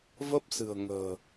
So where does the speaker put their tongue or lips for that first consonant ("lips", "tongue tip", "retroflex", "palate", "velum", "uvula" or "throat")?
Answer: lips